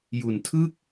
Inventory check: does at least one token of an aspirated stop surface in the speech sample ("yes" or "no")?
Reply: yes